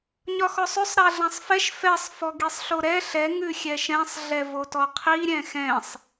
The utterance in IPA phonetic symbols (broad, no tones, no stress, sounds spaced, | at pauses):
ɲ ɒ x ɔ sˤ ʉ sˤ ɾ a ɮ ã sˤ f ɛ ʃ f ɛ sˤ f ɔ ɡ i sˤ ɬ o ɾ ɛ ɬ ɛ ŋ ʉ xʲ ɛ ʃ ɛ̃ sˤ ɮ ɛ v o t ɔ qʰ i ɾʲ ɛ̃ x ɛ̃ sˤ